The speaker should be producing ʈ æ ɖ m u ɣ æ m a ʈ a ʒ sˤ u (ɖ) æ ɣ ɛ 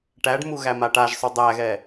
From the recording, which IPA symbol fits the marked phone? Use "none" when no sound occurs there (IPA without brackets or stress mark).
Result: dˤ